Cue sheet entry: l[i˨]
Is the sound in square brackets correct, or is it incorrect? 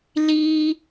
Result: incorrect: i˦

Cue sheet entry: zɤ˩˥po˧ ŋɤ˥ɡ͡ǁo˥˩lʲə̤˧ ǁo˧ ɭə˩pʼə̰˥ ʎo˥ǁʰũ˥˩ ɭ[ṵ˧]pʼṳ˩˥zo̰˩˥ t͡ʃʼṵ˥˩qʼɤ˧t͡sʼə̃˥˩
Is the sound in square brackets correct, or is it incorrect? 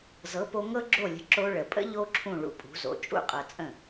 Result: correct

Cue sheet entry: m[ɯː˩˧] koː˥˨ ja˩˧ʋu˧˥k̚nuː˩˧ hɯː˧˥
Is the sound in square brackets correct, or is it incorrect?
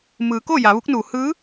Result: correct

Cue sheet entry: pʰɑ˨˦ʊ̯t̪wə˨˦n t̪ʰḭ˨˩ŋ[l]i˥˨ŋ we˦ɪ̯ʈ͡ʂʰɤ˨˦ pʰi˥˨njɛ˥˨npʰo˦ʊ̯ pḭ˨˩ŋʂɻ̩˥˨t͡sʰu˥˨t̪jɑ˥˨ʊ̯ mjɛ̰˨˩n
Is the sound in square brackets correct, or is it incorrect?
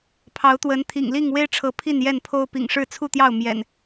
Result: correct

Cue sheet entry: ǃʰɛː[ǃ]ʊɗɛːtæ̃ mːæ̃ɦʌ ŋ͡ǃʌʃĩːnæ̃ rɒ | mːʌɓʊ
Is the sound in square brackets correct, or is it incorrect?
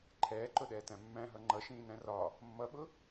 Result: correct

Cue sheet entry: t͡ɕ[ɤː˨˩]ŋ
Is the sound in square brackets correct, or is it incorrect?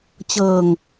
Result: incorrect: ɤː˧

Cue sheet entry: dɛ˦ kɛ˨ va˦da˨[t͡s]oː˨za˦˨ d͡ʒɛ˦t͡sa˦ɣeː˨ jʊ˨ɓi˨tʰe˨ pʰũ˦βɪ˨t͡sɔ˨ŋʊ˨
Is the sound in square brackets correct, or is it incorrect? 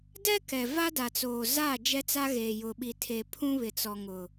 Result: correct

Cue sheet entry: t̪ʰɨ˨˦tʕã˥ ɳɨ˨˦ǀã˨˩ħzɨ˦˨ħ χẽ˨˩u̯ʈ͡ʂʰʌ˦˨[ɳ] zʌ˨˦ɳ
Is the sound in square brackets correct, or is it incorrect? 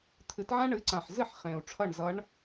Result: correct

